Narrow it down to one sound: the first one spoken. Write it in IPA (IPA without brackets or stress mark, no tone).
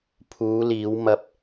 pʰ